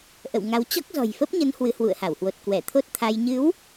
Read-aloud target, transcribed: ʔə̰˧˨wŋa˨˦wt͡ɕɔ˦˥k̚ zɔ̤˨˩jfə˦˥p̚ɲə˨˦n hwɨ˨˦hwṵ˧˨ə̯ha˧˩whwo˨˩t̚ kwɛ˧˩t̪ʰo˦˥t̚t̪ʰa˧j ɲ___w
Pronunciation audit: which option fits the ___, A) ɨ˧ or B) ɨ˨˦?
B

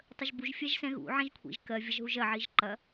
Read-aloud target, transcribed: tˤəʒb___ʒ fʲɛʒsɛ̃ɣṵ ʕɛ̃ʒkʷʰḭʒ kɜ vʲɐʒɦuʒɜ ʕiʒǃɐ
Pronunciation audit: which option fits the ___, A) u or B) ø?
A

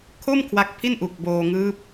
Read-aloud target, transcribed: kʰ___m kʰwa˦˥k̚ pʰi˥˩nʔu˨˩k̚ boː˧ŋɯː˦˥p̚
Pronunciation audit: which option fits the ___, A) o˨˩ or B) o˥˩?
B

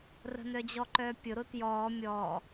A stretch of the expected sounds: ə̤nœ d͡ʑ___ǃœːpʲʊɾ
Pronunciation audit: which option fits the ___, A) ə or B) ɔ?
B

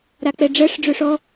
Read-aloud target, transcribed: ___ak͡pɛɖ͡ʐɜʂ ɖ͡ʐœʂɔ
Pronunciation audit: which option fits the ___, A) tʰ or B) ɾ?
B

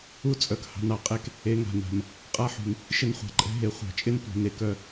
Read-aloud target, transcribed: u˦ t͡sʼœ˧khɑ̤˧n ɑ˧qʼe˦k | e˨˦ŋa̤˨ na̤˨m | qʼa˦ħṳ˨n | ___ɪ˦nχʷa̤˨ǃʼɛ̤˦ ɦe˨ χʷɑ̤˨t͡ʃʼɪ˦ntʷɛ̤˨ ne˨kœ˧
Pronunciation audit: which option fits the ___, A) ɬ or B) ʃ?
B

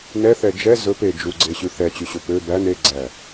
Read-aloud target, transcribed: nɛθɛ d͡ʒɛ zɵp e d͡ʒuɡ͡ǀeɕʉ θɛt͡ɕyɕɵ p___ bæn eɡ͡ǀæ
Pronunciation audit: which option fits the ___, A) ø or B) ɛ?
A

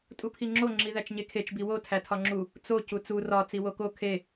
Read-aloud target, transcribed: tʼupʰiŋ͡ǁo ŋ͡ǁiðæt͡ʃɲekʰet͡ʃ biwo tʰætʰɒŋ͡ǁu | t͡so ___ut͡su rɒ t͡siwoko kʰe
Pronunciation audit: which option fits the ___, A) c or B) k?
A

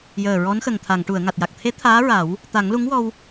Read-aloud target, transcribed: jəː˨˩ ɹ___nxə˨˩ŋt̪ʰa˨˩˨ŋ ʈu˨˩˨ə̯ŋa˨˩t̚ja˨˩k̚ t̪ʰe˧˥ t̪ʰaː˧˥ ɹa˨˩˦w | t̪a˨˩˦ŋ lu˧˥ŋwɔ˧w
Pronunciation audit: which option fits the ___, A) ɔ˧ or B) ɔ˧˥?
B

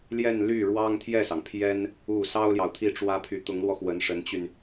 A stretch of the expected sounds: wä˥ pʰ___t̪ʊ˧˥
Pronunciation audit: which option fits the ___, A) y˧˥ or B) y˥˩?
A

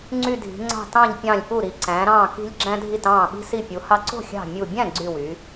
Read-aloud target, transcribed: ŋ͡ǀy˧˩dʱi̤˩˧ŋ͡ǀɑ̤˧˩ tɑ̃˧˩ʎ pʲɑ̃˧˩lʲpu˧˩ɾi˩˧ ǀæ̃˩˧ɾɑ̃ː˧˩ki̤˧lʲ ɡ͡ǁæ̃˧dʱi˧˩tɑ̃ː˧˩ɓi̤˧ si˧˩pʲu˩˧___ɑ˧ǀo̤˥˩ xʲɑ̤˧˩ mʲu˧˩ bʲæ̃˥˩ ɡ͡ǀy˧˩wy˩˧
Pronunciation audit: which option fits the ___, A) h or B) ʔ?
A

